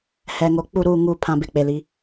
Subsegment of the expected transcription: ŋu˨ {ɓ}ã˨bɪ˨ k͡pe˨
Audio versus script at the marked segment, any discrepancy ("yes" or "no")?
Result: yes